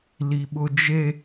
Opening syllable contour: high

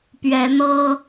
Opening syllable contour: rising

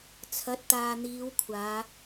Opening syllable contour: rising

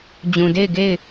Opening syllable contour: low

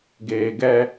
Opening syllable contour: low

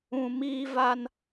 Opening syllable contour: low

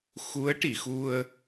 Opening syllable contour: rising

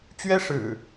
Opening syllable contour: high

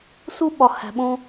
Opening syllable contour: high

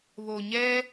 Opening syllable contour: low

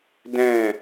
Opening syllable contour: falling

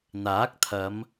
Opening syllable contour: rising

